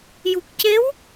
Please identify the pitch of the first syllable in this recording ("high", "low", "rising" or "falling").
low